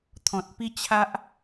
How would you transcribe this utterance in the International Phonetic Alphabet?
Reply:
t̪ʰ ɔ̃˨ t̚ p i˦ t͡ɕʰ a˦ ʔ

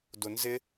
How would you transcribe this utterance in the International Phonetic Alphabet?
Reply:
d ʊ n z ɪ

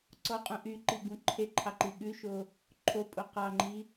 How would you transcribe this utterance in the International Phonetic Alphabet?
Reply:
ǀ ɔ qʼ ũ ʔ y ǃ i ɡ ũ ǃʰ e ǃʰ ɑ ǃ i ɠ ʉ ʃ o | ǃʰ o pʼ o q ɑ ŋ͡ǃ i

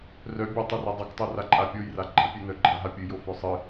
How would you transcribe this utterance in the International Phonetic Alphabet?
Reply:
r œ bʲ a tˤ e r e dˤ a k tˤ o r a ǃʼ a pʲ o j r a ɡ͡ǃ a pʲ e n œ ɡ͡ǃ a ɦ a pʲ ɨ j o f œ sˤ ɨ

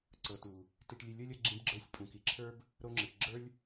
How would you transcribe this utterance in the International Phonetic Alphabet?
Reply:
ǀ ɤ˨ t u˨ | t i˨ ʈ lʲ ɨ˨ lʲ o˦ lʲ ɤ˧ ɡ͡ǁ ĩ˧ b ɡ͡ǁ ə˞˧ sʲ pʼ ũ˨ k i˨ ǁʰ ə˞˦ b | ɾ o˧ ŋ͡ǁ ɨ˨ ʈ ɡ͡ǁ ə˞˦ lʲ

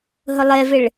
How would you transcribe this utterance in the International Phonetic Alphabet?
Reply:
ɦ ʊ lˠ e v ɪ ɭ

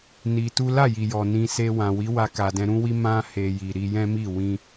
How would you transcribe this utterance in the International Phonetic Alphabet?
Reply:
n i˧ t u˦ l a˦˨ j i˨ j ɔ˨ n ĩ˧ s e˧ w ã˨ w i˨˦ w a˧ k a˨ d ɛ̃˧ ɾ ũ˦ w i˦ m ã˦ h e˧ j i˨ ɾ i˧ j ɛ̃˦ m i˦˨ w ĩ˧

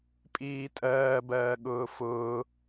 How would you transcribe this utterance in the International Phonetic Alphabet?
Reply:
pʼ iː tʼ ɜː b ɜː ɠ ʊː f ʊː

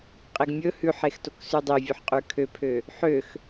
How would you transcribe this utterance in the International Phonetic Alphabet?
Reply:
qʼ e ɡ mʲ ɵ h ʉ ħ e x t o k s ʉ dˤ e vʲ ɵ ħ qʼ ʉ kʰ ø pʰ ø | ħ ø x

